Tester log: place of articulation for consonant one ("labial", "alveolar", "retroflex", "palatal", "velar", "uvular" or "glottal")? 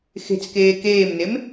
velar